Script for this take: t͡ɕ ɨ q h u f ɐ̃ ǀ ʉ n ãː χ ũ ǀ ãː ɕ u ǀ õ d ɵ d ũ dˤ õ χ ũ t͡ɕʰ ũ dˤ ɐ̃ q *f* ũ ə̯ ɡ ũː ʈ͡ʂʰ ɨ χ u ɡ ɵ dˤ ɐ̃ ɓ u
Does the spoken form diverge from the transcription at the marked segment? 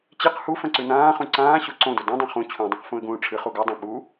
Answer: no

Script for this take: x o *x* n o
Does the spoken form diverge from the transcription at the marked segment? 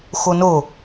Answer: yes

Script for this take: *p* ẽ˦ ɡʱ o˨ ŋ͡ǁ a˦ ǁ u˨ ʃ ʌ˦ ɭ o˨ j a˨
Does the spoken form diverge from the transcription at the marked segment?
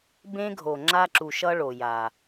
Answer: yes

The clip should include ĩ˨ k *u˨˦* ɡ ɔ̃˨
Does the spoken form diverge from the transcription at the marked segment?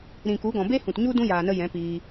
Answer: no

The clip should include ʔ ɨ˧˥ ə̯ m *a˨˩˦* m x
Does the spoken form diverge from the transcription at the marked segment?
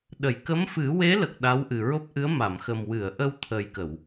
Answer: yes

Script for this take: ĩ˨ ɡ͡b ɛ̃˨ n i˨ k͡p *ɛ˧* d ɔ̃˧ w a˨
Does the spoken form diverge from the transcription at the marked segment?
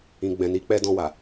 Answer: no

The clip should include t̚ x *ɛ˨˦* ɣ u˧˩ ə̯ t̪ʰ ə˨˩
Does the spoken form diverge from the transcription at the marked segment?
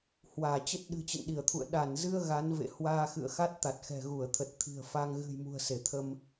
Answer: yes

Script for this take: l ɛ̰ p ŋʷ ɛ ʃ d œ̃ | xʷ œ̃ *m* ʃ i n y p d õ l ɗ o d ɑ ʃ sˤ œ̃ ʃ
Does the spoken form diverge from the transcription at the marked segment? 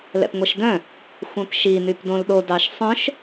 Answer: yes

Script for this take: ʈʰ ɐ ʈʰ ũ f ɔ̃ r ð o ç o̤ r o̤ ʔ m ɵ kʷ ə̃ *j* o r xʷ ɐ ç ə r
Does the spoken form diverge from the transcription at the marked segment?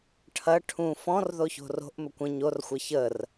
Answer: yes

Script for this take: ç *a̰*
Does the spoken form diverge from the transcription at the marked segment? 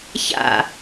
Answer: no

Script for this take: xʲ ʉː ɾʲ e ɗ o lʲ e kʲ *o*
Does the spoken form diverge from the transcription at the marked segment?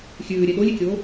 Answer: yes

